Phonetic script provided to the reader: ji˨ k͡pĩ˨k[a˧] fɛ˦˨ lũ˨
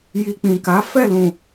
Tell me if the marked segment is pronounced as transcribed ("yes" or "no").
no